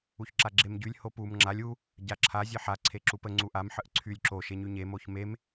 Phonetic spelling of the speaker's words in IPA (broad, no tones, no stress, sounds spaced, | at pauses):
u ç ǁ a ɡ͡ǁ e m ɟ y lʲ h o p u m ŋ͡ǁ a lʲ u | ɟ a ǁʰ a zʲ e ħ a ǀʰ e ǁ u p ə ŋ͡ǀ u ʔ a m ħ ə ʔ ǀʰ y lʲ ǁ o ʃ e ɲ y ɲ e m o ç m e m